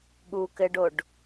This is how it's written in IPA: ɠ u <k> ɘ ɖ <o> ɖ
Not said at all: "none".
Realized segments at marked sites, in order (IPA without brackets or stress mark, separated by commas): k, o